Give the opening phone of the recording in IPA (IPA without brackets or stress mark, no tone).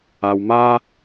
a